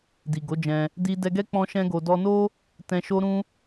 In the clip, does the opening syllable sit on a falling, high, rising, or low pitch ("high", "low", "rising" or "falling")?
low